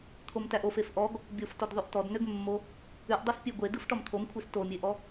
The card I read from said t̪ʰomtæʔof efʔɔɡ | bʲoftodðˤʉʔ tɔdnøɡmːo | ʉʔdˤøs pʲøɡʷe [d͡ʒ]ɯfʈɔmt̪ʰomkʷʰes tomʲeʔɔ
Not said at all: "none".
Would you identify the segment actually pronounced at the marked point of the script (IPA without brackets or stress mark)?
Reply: d